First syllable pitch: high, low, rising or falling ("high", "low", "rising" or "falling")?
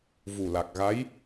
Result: low